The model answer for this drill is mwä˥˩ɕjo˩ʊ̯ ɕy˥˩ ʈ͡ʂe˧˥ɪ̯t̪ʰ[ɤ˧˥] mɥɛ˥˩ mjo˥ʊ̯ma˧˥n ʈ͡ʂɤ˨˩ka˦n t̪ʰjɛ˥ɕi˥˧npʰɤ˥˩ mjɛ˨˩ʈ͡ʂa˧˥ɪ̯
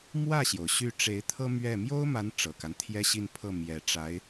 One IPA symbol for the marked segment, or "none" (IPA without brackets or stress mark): ɤ˥